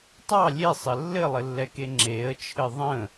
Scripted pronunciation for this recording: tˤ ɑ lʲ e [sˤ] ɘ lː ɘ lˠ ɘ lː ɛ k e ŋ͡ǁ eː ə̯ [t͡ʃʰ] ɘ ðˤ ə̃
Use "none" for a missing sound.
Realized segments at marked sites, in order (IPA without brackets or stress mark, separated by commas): sˤ, t͡ʃʰ